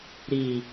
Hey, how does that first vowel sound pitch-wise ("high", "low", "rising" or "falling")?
low